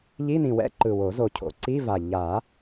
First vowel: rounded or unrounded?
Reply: unrounded